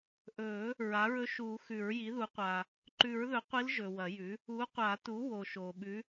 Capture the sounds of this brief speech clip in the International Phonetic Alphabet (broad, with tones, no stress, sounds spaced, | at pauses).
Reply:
ʔ ɵː˨˩˦ | ɹ a˩˥ ɹ ɵ˧˥ ʃ uː˨˩˦ x ʉ˨˩˦ ɹ j i˩˥ ð u˩˥ qʷ a˨ | ǃ ʉ˨˩˦ ɹ ð ɵ˩˥ qʷ i˧˥ l ʒ ɵ˨ w ɐ˨˩˦ j ʉ˩˥ | u˩˥ qʷ a˨˩˦ t u˩˥ w o˨ ʃ oː˨ ɓ ʉ˧˥